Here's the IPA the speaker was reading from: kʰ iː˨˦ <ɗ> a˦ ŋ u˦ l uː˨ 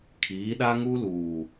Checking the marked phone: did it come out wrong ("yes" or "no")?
no